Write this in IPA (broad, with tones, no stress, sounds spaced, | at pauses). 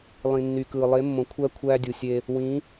lˠ ĩ˨ nː y˨ k ɯː˨ lˠ e˨˦ mː õ˨ kʷʰ æ˦ kʷʰ æː˦ dʲ u˨ sʲ e˦ | w ĩ˨˦